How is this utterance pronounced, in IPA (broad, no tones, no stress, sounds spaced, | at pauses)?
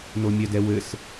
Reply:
n o mʲ ɐ d ɛ w ɘ s